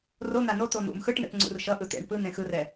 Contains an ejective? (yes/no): no